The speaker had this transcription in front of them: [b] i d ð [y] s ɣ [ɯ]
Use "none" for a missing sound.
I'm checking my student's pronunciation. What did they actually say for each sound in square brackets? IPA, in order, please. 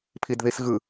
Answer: pʰ, i, ɯ

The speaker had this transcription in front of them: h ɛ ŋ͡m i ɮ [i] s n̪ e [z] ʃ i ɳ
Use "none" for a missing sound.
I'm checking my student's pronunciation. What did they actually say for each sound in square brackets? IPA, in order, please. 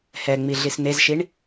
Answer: i, z

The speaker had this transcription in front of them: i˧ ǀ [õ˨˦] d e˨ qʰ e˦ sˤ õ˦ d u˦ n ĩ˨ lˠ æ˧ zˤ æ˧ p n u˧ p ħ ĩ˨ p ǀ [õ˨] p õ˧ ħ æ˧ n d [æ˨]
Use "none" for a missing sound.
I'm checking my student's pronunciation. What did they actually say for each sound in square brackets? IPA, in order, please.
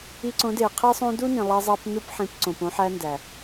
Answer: õ˨˦, õ˨, æ˨

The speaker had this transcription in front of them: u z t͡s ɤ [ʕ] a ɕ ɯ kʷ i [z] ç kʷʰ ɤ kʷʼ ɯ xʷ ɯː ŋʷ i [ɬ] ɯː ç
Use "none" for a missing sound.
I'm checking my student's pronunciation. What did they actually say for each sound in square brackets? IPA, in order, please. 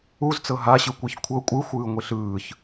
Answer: ɦ, none, ɬ

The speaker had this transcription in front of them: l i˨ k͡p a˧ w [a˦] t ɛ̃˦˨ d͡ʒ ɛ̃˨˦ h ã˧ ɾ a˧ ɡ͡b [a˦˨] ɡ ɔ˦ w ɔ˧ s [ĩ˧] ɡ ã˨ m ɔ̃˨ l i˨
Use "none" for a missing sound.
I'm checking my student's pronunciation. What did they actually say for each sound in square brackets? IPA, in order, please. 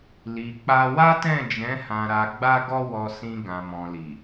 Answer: a˦, a˦, ĩ˧

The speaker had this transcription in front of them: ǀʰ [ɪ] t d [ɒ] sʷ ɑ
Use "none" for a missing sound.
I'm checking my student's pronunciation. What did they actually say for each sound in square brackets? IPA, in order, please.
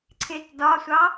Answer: ɪ, ɒ

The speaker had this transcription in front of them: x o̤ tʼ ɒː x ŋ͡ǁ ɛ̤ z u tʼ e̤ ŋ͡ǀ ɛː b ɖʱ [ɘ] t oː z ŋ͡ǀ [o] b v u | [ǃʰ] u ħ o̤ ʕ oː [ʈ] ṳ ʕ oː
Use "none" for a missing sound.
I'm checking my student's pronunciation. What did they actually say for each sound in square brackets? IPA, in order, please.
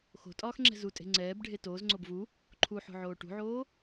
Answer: e, o, ǃʰ, ʈ

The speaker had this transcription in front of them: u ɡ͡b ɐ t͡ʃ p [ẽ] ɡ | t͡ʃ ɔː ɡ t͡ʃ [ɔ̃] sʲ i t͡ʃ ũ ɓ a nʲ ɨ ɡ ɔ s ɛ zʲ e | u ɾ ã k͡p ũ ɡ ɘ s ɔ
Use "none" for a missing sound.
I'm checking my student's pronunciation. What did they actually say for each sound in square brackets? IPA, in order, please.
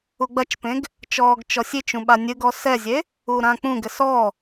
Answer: ẽ, ɔ

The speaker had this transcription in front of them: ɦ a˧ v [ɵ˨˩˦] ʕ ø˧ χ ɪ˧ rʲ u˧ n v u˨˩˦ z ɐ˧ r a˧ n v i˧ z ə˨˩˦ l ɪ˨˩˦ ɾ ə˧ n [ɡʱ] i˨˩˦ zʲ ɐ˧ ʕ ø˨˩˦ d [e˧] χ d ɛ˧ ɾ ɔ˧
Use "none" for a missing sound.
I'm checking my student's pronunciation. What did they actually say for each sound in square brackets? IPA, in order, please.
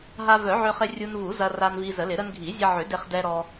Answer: œ˨˩˦, ɡʱ, e˧

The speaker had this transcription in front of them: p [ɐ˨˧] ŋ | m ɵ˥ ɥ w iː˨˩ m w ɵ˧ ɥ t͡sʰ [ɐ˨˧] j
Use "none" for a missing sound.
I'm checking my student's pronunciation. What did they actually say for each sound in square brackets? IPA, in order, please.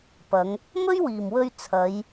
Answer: ɐ˨˧, ɐ˨˧

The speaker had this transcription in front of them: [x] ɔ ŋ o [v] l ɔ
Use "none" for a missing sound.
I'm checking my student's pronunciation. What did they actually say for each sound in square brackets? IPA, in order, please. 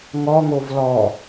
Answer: ŋ, v

